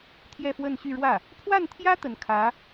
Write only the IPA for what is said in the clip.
t̪ʰ j ɛ˥˧ f w ə˥˧ n ɕ y˥˧ ɻ w ä˥˩ | pʰ w a˥˩ n t̪ʰ j ä˥ t̪ ə˧˥ n kʰ ä˧˥

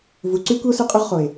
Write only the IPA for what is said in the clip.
v u˨ ǀ y˦ kʷ i˦ o̯ s ø˦ qʼ ʉ˦ ʁ χ o˨ e̯

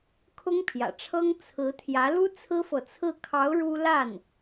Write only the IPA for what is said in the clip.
kʰ ʊ˥ ŋ pʰ j ä̰˨˩ ʈ͡ʂʰ ɤ˥ ŋ t͡sʰ ɹ̩˧˥ t̪ʰ j ä˧˥ l u˥ t͡sʰ ɹ̩˥ f ɤ˨ t͡sʰ ɹ̩˥˩ kʰ ɑ˧˥ ʊ̯ ɻ u˥ l a˥˩ n

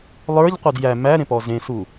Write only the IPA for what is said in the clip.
lˠ ə˞ ʎ qʷ ə˞ d j æ m æ ɾ ẽ p ɔ z ẽ s u

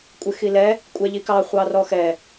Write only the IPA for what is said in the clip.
kʷʼ ɪ x i l ɛ | kʷʼ ɛ ʎ i k ɑ χʷ ɑ r ɔ x ɛ

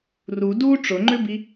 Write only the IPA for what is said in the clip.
r u d u ʈ͡ʂ ʊ ŋ͡ǃ ʏ b i

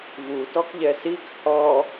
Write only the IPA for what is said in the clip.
v u t ɔ k ʎ ɛ s i k h ɔ

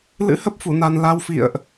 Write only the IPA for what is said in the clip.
l ɨ̰˧˥ h ə˦˥ p̚ f u˧˩ n a˨˩ n l a˧ w f ḭ˧˨ ə̯ ʔ

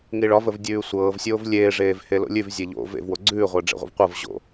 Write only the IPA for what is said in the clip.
ŋ i ɭ ɒ v ə v dʲ ʉː sʷ ɤː v sʲ oː v lʲ eː ʐ eː v h e l o̰ lʲ ʉ v zʲ e ʎ o̰ v ḛ v w o ɡ͡ǀ ʉː ʁʷ əː ɖ͡ʐ ḛ ʁʷ ə̰ v qʷ ɤ v ʑ o̰

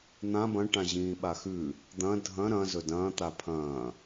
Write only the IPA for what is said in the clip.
n̪ ã b ɐ̃ ʈ ã ʑ ĩː ɓ a x ʉ | d̪ ɐ̃ dʱ ɐ̃ ɾ ɐ̃ z ɵ d ɐ̃ː t̪ a pʰ ɐ̃ː

